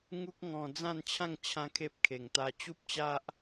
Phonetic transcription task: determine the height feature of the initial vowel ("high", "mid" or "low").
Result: high